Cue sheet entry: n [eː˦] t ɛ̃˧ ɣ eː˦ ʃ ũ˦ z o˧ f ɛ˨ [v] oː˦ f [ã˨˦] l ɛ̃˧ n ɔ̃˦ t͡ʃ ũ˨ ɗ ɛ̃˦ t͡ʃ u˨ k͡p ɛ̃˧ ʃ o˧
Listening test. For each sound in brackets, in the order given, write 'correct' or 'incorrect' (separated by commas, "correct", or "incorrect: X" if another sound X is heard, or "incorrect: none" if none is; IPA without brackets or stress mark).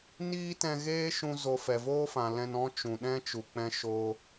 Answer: incorrect: iː˦, correct, incorrect: ã˨